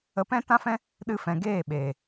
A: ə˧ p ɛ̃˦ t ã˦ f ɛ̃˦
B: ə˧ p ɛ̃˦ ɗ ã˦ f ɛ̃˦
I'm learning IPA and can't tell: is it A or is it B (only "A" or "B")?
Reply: A